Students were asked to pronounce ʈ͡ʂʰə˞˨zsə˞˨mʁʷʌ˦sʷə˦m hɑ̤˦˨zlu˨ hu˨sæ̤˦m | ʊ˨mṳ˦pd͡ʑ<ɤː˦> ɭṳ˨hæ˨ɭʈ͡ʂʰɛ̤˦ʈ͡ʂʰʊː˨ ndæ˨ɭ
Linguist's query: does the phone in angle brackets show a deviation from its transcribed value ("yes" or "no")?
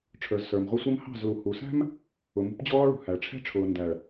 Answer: yes